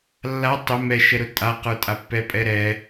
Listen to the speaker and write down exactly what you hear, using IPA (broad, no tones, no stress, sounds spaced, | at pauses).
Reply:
lː a tˤ ʊ m ɛ ʃ ɛ ɾ ʊ tʼ a q ə˞ tʼ a pː ɛ pʼ ɛ ɾ ɛ